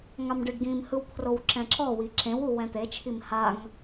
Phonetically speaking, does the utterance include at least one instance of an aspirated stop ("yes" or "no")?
yes